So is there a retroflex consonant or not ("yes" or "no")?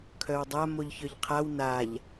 no